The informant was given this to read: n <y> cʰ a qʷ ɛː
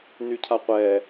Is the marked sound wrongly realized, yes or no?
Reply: no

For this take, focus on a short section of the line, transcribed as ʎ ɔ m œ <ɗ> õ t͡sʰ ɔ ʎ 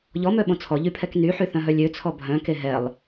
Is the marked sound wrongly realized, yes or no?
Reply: yes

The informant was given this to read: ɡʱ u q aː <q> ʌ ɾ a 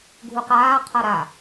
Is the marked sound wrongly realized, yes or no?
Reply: yes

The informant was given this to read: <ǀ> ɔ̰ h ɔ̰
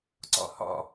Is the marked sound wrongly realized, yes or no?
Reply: no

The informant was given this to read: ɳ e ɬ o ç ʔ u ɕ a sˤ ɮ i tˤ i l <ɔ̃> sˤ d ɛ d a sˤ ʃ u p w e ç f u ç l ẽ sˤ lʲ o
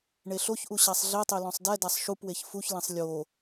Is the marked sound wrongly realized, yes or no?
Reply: no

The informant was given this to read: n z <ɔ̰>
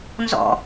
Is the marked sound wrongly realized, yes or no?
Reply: no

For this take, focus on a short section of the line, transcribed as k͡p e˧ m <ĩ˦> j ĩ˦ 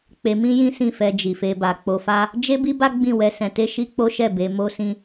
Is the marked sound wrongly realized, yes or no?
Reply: no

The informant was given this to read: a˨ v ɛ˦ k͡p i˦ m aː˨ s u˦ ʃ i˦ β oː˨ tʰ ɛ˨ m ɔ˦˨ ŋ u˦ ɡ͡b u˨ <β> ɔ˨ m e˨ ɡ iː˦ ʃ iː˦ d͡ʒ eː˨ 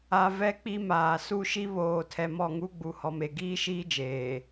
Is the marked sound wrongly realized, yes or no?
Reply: yes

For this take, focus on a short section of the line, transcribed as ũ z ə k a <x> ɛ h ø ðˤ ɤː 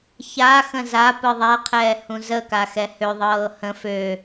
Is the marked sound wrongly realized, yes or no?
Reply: no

